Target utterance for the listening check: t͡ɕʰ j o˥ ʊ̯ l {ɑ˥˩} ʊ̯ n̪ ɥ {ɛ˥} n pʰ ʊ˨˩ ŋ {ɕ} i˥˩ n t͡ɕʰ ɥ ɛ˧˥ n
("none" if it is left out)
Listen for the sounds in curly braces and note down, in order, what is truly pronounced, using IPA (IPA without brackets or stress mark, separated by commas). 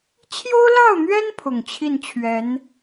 ɑ˥˩, ɛ˥, t͡ɕʰ